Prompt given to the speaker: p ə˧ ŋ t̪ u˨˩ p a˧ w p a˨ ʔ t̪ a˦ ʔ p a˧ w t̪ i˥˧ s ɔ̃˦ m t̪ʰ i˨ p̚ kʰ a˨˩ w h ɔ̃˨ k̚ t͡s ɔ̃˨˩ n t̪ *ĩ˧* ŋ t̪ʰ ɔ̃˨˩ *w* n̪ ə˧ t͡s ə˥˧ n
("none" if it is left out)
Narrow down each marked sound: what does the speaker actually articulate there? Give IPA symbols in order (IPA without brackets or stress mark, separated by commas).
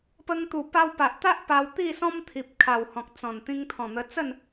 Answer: ĩ˧, none